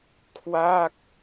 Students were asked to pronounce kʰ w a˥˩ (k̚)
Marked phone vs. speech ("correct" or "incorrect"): correct